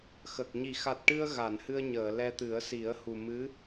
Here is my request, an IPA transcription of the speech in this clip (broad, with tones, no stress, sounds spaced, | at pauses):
x ə˨˩ k̚ ɲ i˨˩˨ x a˨˩ t̚ ʈ ɨ˧ ə̯ ɣ a˨˩˨ n h ɨ˧ ə̯ ɲ əː˨˩˨ l ɛ˧ t̪ ɨ˨˩˦ ə̯ s i˨˩˦ ə̯ h u˨˩ m ɨ˧˥